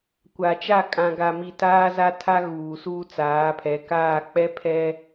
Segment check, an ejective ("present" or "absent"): present